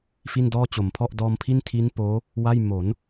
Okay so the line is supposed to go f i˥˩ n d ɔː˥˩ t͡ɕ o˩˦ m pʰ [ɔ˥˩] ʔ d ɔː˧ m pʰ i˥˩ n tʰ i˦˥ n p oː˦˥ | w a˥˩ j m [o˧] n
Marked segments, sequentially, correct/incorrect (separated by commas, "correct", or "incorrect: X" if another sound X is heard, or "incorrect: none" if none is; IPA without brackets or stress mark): correct, incorrect: o˩˦